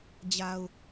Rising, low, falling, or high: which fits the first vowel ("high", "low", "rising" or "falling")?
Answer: low